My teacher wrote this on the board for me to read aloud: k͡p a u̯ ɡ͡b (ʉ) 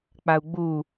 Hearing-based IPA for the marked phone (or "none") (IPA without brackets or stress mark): u